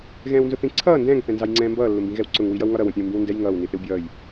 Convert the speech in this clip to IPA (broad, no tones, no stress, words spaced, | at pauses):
ɣɛ̃ːwnzʊθĩ ǀʰʌː ndɛ̃ːŋ θɛ̃nzɑjŋ͡ǀɛ̃ːmbʌː lːʊmbĩɣɛwǀʊŋ wijʌwŋɒɾʌ wə̃pʲɛ̃wmbĩwndɛj ŋʌːw niθɪwbʲʌːj